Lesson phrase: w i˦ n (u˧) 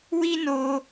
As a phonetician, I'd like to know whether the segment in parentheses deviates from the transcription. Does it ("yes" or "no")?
yes